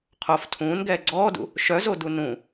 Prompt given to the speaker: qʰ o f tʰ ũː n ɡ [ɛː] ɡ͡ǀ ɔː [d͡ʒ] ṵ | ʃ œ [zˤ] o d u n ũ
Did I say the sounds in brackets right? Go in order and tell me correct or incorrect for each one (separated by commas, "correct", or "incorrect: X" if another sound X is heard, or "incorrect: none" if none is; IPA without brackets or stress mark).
correct, incorrect: d, incorrect: z